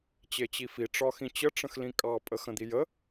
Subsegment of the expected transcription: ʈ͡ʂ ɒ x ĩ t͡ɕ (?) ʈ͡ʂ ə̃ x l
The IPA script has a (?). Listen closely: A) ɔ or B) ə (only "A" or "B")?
B